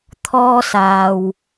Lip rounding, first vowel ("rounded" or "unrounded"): rounded